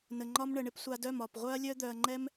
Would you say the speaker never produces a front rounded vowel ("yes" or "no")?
no